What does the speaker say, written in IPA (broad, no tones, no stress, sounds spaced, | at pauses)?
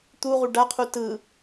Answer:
t̪ u ʁ u ɖ a qʰ u t ɯ